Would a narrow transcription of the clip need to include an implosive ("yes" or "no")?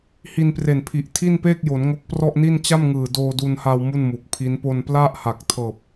no